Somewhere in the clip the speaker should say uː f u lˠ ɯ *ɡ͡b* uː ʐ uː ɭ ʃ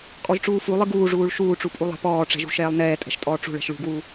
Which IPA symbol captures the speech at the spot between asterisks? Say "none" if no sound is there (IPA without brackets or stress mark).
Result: ɡ